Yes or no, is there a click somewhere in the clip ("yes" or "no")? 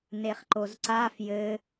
yes